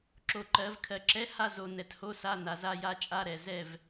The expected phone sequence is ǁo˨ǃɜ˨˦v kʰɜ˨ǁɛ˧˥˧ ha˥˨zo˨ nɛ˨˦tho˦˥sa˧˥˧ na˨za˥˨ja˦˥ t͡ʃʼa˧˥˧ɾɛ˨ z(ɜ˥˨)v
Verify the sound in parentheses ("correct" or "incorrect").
incorrect